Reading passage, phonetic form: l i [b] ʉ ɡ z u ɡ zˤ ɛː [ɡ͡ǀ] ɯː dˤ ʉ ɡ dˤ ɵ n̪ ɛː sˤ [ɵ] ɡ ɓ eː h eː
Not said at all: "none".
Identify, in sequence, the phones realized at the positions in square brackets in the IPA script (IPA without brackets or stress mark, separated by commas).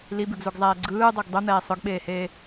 b, ɡ͡ǀ, ɵ